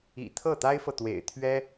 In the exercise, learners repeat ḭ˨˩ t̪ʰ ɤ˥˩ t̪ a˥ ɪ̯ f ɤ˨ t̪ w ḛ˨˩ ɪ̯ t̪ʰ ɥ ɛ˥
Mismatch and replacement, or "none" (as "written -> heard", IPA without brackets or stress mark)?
none